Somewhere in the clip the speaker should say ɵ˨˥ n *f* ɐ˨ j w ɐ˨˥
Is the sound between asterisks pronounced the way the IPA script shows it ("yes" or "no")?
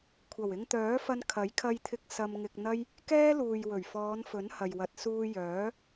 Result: no